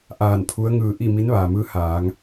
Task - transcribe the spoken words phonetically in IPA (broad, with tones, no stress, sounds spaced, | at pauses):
ʔ aː˧˩ n pʰ u˧˥ ə̯ ŋ ɯː˧ ʔ i˥˨ m i˧˥ n ʋ aː˩ m ɯː˧˥ h aː˩˧ ŋ